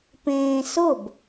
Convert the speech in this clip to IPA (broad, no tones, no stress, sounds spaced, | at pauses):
p ẽː s ʊ b